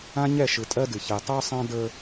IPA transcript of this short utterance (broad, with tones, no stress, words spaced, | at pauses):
ã˦ɲɛ˦˨ʃɯ˨ tʼɜ˦dɨ˨ çɛ˨ tˤə˞˦sˤã˦ də˞˦